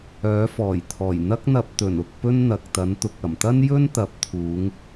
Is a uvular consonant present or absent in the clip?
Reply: absent